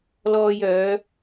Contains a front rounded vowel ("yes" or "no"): yes